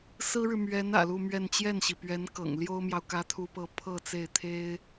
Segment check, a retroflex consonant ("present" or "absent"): present